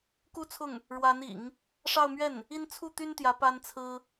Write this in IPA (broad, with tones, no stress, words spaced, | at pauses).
ku˥t͡sʰʊ˥˩ŋ | ɻwa˧˥nḭ˨˩˦ŋ | ʂɑ˥˧ʊ̯mɥɛ˥˩n | i˥n t͡sʰu˥˩t̪y˥nt̪jä˧˥ pa˥nt͡sʰɹ̩˥